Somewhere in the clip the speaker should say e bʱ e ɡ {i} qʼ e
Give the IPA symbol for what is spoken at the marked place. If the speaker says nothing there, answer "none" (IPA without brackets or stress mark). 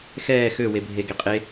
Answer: e